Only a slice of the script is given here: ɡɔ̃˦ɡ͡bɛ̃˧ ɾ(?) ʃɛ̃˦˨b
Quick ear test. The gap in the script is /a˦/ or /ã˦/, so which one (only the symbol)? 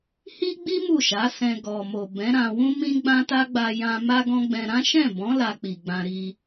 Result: ã˦